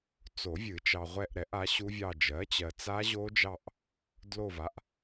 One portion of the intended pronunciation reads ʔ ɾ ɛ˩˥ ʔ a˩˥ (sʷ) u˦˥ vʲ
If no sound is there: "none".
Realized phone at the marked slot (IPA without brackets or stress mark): ɕ